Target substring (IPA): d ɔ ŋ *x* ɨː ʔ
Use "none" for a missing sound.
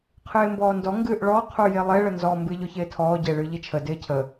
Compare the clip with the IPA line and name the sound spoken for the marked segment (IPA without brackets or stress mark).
ɡ